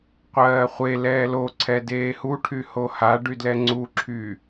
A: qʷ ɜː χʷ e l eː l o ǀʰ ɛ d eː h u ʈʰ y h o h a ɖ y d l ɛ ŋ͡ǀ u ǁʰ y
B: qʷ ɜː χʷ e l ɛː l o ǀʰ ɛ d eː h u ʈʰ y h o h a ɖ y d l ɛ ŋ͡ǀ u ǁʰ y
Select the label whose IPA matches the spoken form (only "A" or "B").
B